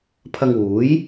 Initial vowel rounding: unrounded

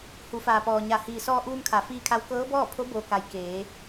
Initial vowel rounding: rounded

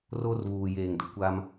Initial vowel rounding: rounded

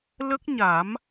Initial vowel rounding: unrounded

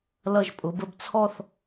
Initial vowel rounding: unrounded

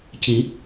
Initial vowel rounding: unrounded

